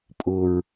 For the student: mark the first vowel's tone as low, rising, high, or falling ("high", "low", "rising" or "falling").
low